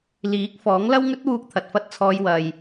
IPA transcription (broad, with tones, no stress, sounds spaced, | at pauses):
l iː˨˥ k̚ f ɔː˨˥ ŋ l ɐ˥ w ŋ ɵ˥ t̚ w uː˧ k̚ t̪ʰ ɐ˨ t̚ f ɐ˥ t̚ t͡sʰ ɔː˧ j w ɐ˨ j